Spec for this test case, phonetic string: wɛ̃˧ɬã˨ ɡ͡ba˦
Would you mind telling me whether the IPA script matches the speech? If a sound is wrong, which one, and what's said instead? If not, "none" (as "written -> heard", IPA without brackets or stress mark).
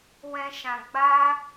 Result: ɬ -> ʃ